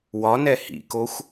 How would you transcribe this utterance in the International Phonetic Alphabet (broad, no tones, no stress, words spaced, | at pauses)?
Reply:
wɒnɛ hḭkoxʷ